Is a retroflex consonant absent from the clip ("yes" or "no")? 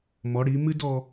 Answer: no